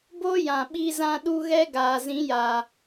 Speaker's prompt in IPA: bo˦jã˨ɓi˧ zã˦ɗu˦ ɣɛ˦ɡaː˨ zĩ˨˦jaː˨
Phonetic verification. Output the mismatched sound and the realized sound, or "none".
none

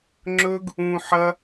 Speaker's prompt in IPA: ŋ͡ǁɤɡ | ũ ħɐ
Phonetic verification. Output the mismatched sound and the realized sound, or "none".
ɤ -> ɵ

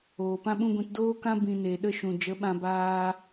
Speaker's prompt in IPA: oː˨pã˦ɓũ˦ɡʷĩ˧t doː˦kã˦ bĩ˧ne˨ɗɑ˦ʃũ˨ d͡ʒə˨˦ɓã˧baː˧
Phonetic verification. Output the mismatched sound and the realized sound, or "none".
ɑ˦ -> ə˦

